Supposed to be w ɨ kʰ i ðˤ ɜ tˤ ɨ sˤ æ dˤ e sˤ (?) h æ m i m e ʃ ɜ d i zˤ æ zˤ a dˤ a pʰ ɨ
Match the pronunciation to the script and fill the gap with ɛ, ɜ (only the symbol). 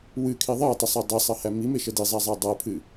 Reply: ɜ